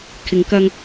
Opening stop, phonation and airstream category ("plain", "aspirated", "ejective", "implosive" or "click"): aspirated